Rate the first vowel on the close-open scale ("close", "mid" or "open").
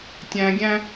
open